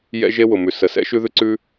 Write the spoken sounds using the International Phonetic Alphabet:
j ɛ̰˥ ʒ e˥ w ʊ˩ m ʉ˩ s ə˩ s ɛ̰˥ ʃ ʉ˥ ð ʉ˥ ǀ ʉ˥

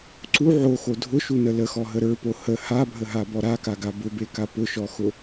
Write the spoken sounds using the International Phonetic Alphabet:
ǀ u ʕ o x o dʱ ʊ ʃ u n ə l ə x ɔ ɦ ə ɾ ə˞ p o h ə h a bʱ ə ɦ a b ɔ ɾ a k a ɡ a b ʊ b e k a p ʊ ʃ ɔ x ʊ

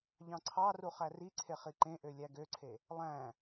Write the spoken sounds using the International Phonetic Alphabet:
ʎ ɑ̃ ǀʰ ɑ r u χ æ r i ǀʰ e χ i ǃ ẽ ʔ ø lʲ æ ɡ ø ǀʰ e | lˠ æ̃

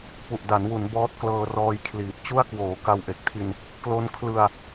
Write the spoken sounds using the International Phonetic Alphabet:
p u˨˩ ʔ d a˩˦ n w u˩˦ n b ɔː˦˥ t̚ k l ɤː˧ r ɔː˧ j kʰ l iː˨˩ t̚ t͡ɕ u˥˩ a̯ k w oː˩˦ k a˧ w ʔ e˨˩ k̚ tʰ i˧ n | k l o˦˥ n kʰ l ɯ˧ a̯

